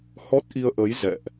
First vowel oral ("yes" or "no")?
yes